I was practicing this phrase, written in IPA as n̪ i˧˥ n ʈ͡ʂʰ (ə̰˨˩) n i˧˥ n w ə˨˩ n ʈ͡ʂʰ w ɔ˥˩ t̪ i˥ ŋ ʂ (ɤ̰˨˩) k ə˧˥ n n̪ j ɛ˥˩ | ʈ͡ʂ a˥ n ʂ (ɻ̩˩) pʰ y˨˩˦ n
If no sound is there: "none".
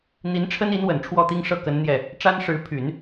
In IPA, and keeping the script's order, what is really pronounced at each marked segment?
ə˥, ɤ˥˩, ɻ̩˧˥

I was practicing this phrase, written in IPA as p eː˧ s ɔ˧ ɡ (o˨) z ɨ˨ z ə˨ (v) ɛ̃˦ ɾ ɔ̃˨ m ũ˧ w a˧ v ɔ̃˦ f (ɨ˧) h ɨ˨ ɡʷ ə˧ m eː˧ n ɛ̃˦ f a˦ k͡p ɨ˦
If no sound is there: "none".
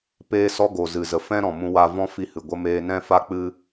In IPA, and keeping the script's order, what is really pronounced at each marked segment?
o˨, f, i˧

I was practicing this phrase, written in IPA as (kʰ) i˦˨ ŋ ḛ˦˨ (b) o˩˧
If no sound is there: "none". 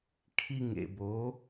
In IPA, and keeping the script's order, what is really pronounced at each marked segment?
kʰ, b

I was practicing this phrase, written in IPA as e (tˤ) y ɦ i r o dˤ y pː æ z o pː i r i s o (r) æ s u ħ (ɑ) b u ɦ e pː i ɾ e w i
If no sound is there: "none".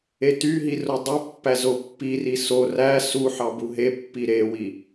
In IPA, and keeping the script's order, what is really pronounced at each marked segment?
t, r, ɑ

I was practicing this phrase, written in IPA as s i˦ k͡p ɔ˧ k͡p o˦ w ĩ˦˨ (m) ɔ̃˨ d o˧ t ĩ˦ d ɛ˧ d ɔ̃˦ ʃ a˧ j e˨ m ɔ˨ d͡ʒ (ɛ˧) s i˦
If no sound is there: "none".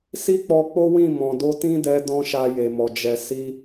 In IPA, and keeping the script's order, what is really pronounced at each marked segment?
m, ɛ˧

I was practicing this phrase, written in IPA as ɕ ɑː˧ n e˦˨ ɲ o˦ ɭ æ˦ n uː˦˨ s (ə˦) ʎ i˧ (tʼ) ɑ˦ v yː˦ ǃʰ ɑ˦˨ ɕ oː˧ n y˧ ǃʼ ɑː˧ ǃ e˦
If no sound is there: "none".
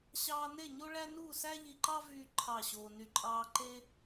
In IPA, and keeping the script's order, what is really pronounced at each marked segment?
æ˦, ǃ

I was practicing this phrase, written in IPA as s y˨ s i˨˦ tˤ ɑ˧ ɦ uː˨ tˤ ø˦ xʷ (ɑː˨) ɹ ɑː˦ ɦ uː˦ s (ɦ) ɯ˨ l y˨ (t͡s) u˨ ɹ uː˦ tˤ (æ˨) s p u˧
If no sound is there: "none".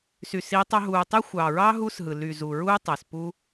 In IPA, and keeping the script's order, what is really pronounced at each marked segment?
ɑː˨, ɦ, z, æ˨

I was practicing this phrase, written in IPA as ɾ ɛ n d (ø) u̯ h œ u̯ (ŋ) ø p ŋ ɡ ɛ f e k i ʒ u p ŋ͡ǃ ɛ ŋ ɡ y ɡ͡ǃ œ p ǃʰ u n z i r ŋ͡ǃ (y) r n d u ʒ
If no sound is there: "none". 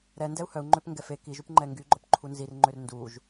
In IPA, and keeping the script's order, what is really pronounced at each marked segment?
ɛ, ŋ͡ǃ, ø

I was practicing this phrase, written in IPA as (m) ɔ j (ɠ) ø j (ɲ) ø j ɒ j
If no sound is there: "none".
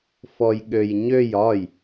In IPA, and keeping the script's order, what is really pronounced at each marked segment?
f, ɠ, ɲ

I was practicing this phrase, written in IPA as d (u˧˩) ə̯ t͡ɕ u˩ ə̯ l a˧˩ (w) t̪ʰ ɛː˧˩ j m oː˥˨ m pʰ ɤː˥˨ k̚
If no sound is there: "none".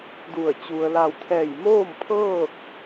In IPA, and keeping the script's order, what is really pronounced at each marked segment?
u˧˩, w

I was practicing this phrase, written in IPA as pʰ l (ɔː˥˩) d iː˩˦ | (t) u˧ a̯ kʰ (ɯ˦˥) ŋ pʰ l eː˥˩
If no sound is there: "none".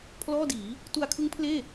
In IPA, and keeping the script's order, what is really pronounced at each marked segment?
ɔː˥˩, t, ɯ˦˥

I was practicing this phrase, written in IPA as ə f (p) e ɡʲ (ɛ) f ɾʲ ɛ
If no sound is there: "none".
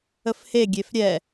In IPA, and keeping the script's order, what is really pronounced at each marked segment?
h, e

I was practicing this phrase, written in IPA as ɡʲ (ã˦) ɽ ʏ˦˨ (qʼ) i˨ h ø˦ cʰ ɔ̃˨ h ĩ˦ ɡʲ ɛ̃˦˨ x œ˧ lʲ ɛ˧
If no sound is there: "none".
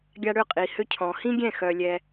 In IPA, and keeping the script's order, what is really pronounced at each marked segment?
a˦, qʼ

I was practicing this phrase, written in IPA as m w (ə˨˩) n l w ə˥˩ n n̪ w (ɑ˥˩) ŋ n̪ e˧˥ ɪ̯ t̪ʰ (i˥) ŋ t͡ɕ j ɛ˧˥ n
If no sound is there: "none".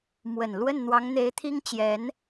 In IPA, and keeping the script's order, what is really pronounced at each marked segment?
ə˨˩, ɑ˧˥, i˥

